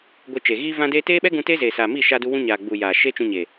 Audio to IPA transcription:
ɡʷ e˧ t͡ʃ e˨ ɣ iː˧ v ã˧ d eː˧ t eː˦ ɓ ɛ˦ ɡ ũ˧ t eː˦ z eː˨ s aː˨ m iː˦˨ ʃ aː˧ d u˧ w ũ˦ ɲ aː˨ ɡ͡b u˨ j aː˨ ʃ eː˦ t͡ʃ ũ˧ ɲ eː˨

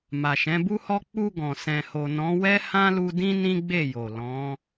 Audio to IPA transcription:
m a˨ ʃ ɛ̃˨˦ b u˦ h ɔ˦ k͡p u˧ ɡ ɔ̃˨ s ɛ̃˨ h o˨ n ɔ̃˨˦ w ɛ˦ h ã˦ l u˧ d ĩ˦ n ĩ˦ ɡ͡b e˦˨ j o˨ l ɔ̃˨˦

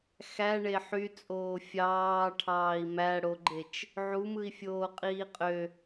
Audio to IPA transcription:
x æ ɳ e ħ y t͡sʼ oː fʲ ɑː ʈʰ ɑː i̯ m æ ɽ o ɡ͡ǃ e t͡ʃ | ʕ u m ɯ i̯ fʲ oː qʼ iː qʼ ø

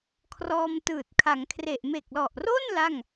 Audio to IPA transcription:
kʰ r ɔː˧ m t ɯː˨˩ t̚ kʰ a˩˦ ŋ kʰ r e˨˩ ʔ m e˨˩ k̚ l ɔ˨˩ ʔ r o˥˩ n l a˥˩ ŋ

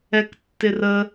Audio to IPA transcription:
ɛ k tː ɪ r ə

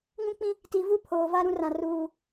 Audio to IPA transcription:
ŋ ũ˦ k͡p ĩ˦ | t i˨ v u˦˨ pʰ oː˨ v a˦ ɾ ũ˦ r ã˨ r uː˨

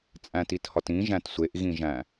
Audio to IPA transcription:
t͡sʼ æ̃ t i t h ɒ t ĩ ʒ æ̃ t sʷ e ʔ ɣ ĩ ʒ æ̃

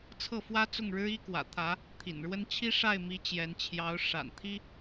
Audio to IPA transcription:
t͡sʰ ɤ˥˩ f w ä˥ t͡s ʊ˥˩ ŋ ɻ ɻ̩˥ i˥ k w ä̰˨˩ t̪ʰ ä˧˥ | t̪ʰ ḭ˨˩ n ɻ w ə˥ n t͡ɕʰ i˥ ʂ a˥˩ ɪ̯ m i˧˥ t͡ɕ j ɛ˧˥ n t͡ɕʰ j ɑ˧˥ ʊ̯ ʂ a̰˨˩ n t̪ʰ i˥

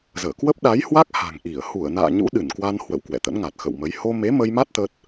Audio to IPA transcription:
z əː˧˩ k w ə˦˥ p̚ ɗ a˨˦ j h w a˦˥ k̚ h a̤˨˩ ŋ ʔ i˧˩ ə̯ h u˧˩ ə̯ n a̰ː˧˨ ɲ ṵ˧˥ ɗ ɨ˧˩ n k w a˧ n h w ə̰˧˨ w k w ɛ̰˧˨ t̪ ə̰˧˥ n ŋ a˨˩ t̚ x ə̰˧˨ w m ə˨˦ j h o˧ m e˨˦ m ə˧ j m a˦˥ t̚ t̪ ə˦˥ t̚

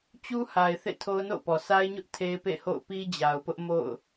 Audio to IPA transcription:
t͡ɕ u˦ h a˨ ɪ̯ θ ḛ˦˨ tʰ o˦ ʊ̯ n o̰˦˨ ʊ̯ p ɔ˨ s a˦ ɪ̯ ɲ ʊ˦ ʔ tʰ e˦ ɪ̯ p ḛ˦˨ h o̰˦˨ ʊ̯ p i˦ d͡ʑ a˨ ʊ̯ p ʊ˦ ʔ m o̰˦˨ ʊ̯

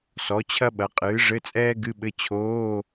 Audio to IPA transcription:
s ɔ˩˥ t͡ɕʰ ɐ˥ ɓ ɐ˩˥ qʼ ɨː˩˥ ʐ ɘ˧˥˧ t͡sʼ ɛː˥ ɡ ɨ˧˥˧ ɓ ɘ˧˥˧ t͡ɕʰ oː˧˥˧

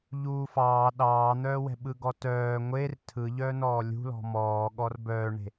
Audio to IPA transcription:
ʎ uː f ɑː ɗ ɑː n̪ œː w ɛ̤ ɓ ɯ ɡ ɔ t œː ŋʷ e r tʰ ɯ ʎ œː n ɔː lʲ ṳ l ɔ̤ m ɔː ɠ ɔ r b œː ɳ e̤

